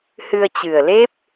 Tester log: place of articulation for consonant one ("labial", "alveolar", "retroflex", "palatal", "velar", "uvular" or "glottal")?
glottal